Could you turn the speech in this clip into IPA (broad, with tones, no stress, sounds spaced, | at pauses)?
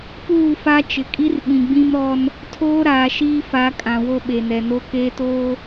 p uː˦˨ f a˦ t͡ʃ ɪ˨ kʼ i˦ r ɓ ĩ˨ ɡ͡b ĩ˦ m ɾ ɔ˦ n | tʰ oː˦ ɾ aː˨ ʃ iː˦ f a˨˦ kʼ ã˨ w o˦ ɓ e˨ n ɛ˨ n o˦ k eː˦ t oː˦